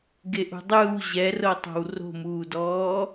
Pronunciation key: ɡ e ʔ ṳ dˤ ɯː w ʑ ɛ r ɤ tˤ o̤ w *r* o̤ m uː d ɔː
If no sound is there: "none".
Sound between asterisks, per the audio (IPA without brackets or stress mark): r